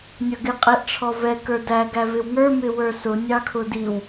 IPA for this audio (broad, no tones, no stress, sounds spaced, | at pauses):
nʲ ʌ ɡ ɪ qʼ ɛ ʔ ʈ͡ʂʰ ɔ v ɛ k ə˞ d æ ɡ æ v ɪ w ŋ ə˞ m ɪ w ə˞ s ʊ nʲ ɑ kʰ ʊ d i w